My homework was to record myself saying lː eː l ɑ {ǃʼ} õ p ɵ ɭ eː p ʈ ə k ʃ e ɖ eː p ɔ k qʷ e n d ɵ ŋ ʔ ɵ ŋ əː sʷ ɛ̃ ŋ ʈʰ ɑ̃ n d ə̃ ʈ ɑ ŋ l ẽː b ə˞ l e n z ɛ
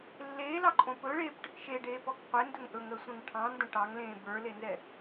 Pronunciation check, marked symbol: correct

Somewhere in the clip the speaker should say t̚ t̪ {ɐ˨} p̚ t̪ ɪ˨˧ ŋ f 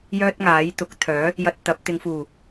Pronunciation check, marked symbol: incorrect: ɐ˨˥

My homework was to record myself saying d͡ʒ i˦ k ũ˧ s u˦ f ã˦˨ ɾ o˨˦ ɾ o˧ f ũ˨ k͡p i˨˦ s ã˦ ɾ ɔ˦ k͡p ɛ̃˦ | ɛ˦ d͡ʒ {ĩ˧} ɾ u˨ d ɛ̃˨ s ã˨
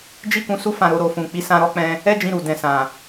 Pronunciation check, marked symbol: correct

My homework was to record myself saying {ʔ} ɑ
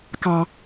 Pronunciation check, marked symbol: incorrect: k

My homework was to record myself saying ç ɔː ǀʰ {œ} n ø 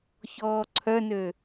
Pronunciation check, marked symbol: correct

